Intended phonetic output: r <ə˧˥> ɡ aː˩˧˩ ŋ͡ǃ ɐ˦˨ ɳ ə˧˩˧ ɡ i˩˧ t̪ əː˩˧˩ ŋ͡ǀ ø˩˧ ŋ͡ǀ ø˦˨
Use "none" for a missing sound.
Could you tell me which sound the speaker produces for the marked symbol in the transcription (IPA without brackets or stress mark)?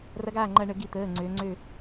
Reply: ɐ˧˥